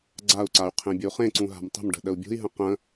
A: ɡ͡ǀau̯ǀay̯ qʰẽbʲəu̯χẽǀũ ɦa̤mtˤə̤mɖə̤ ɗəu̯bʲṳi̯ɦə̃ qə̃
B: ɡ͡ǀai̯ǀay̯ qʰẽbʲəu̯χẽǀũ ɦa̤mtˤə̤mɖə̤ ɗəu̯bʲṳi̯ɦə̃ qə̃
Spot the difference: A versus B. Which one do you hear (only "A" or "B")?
A